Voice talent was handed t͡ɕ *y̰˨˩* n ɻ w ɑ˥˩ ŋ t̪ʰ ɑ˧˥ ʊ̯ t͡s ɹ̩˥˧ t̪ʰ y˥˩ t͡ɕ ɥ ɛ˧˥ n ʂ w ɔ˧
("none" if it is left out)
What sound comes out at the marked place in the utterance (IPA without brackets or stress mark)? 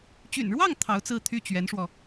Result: y̰˨˩